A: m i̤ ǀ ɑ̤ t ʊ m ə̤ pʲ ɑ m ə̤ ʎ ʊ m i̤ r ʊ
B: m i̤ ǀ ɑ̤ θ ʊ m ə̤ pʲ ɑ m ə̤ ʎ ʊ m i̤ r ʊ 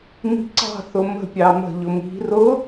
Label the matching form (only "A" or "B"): B